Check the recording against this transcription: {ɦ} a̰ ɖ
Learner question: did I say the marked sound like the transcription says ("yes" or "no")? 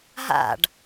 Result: yes